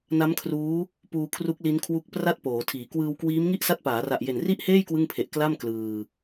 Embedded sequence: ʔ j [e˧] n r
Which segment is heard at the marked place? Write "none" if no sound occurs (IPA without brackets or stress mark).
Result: e˨˩